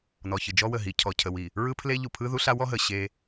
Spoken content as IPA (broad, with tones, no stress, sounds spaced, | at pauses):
n ɔ˨ ç ɯ˨ d͡ʒ ɔ˦ w ə˨ ɦ i˨ cʰ ɔ˨ cʰ ə˨ w i˨ | ɹ ɯ˦ pʰ l e˦ ʎ u˨ pʰ ɯ˦ ð u˦ ɬ a˦ w ɔ˦ ɦ ə˨ ɕ e˦